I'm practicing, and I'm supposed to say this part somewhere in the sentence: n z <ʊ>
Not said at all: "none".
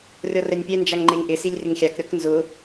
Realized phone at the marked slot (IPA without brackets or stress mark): ʊ